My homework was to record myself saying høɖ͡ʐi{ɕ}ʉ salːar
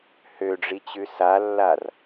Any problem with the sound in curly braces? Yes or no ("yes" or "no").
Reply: yes